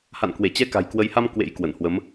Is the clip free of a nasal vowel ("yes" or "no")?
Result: yes